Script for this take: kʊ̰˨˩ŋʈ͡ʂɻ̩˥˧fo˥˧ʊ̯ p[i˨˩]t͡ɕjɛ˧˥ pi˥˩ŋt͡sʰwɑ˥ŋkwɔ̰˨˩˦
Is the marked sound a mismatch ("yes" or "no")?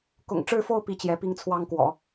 yes